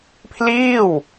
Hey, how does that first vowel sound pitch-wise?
falling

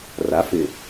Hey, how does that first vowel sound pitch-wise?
rising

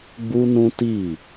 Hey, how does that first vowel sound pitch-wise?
high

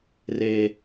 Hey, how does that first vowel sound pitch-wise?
high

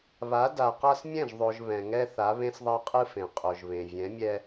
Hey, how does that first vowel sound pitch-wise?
rising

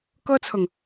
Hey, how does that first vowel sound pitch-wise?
high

